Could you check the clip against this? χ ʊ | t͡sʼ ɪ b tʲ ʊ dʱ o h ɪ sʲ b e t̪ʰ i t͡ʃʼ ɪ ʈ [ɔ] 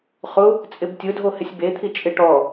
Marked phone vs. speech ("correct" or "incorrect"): correct